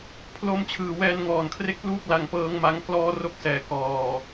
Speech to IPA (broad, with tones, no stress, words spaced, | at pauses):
pʰlo˧mt͡ɕʰɯː˨˩ wɛː˧nŋɔː˨˩nkʰre˦˥k̚pluː˦˥k̚ la˧ŋpɤː˦˥ŋma˦˥ŋ klɔː˦˥ro˦˥k̚sɛː˩˦ kɔː˨˩